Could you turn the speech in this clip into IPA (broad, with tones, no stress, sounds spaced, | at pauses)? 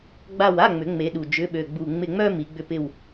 ɡ͡b a˦˨ w a˧˥˧ ŋ͡m ʏ˨˩˦ ŋ͡m e˨˦ ɗ u˨˩ d͡ʒ ʏ˧˥˧ ɓ ø˦˨ ɡ͡b u˦˨ ŋ͡m ɪ˦˨ ŋ͡m œ˥ m i˨˦ ɡ͡b ʏ˦˨ p ɪ˦˨ w